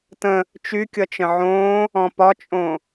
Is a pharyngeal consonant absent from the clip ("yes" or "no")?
no